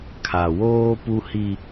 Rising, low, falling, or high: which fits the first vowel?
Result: low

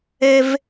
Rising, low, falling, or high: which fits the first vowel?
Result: low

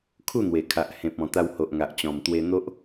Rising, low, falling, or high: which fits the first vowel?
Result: falling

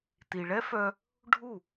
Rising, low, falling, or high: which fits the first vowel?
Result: low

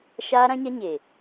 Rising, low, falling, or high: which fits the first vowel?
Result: high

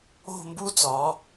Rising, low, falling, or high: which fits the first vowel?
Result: falling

